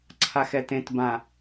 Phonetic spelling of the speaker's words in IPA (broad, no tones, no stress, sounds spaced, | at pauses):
ǀʰ a x ɛ t ẽ t b ã